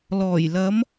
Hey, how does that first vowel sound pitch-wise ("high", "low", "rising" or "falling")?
low